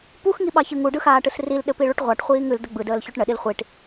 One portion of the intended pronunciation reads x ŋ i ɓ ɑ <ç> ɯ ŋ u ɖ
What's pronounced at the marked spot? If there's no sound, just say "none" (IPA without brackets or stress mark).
ç